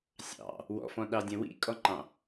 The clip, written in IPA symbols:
sʲ ɑ̰ | w ɔ̰ f ɔ̃ ɗ ɑ dʲ ɛ̃ w ḭ kʼ ɔ ŋ͡ǃ ɑ̃

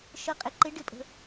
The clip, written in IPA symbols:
ʃ ə˨˦ qʼ ɪ˩ ǃ ɪ˨˦ ɖ ɪ˨˦ pʼ ə̤˩

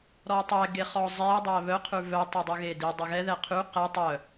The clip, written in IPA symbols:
ɾ ɔ tˤ ɛ ɡ e χ ɔ zˤ e dˤ æ β œ qʰ ʉ v œ tˤ œ dˤ ʉ ɣ e d i dˤ ɛ ɣ ɛ ð ɛ qʰ y q ɛ tˤ œ

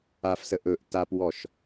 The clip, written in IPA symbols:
a f s ə ʔ ɵ ʔ t a p w ɔ ʃ

